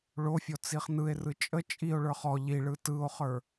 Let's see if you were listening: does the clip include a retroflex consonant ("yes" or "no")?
yes